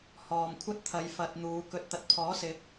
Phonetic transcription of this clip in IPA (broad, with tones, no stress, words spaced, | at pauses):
hɔː˨mkʷʰɐ˥t̚t̪ʰɐ˨˧j fɐ˧t̚n̪uː˨˧ kɵ˨t̚t̪ɐ˨t̚pʰɔː˨˥sɪ˨˥k̚